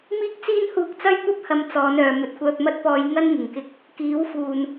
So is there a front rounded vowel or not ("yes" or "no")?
yes